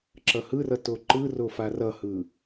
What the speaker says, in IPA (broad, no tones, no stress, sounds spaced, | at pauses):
ǁ ʌ h ɯ r ʌ t o ǃ ɯ r o f a r ʌ h ɯ